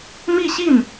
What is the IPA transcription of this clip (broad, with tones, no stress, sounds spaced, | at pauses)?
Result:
m i˥˧ ɕ i˥˩ n